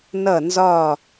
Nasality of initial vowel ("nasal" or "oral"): oral